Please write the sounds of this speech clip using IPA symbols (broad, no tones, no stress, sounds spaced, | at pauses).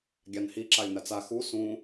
ɡʲ a n h i ǁ a lʲ n a t͡s a x u s ũ